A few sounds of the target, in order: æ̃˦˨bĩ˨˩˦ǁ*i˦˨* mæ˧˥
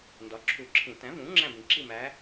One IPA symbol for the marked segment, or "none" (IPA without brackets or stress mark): i˦˨